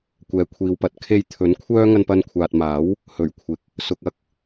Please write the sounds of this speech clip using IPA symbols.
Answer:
kʷɛː˨kʷʰiː˨wpɐ˨t̚ kʰe˧jt̪ʰɵ˨˥n kʷʰœː˥ ŋɐ˧npɐ˧nkʷʰaː˨t̚ maː˨˥w | hɵ˨˩ɥkʷʰɪ˨k̚ | sʊ˧k̚ ɐ˥k̚

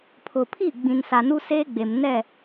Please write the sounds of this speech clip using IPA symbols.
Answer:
pʰʊ˨pʰi˦˨ ɡ͡bĩ˨nsa˨nu˦ seː˦ɡ͡be˨m nɛ˦˨

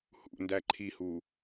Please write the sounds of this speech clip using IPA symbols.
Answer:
hṵndæ ǃʰihu

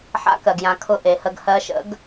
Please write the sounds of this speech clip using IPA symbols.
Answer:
ħa̰˧˥kɜ˩ɡjã˩˧ kʰʊ˧ ʔe˩˧hə˧ɡ hɜ˧˥ʃə̰˧˥ɡ

